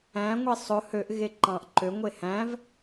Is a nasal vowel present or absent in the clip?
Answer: present